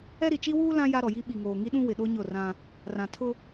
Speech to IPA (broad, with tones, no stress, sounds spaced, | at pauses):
ɛ˦ ɾ i˨ t͡ʃ i˦ w uː˦ l ã˦ j a˦ ɾ ɔ˨ j i˦ ɓ i˨ ŋ oː˨ ŋ i˦ ɗ ũ˦ w ɪ˨ ɗ o˦ ɲ ʊ˦˨ r ã˦ | r ã˨ tʰ ʊ˦